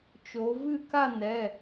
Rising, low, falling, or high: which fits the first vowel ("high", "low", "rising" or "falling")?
rising